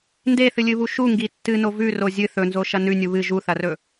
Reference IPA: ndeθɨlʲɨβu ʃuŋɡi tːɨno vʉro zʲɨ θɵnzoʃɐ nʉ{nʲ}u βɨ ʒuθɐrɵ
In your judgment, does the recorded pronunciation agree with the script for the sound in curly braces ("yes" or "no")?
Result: yes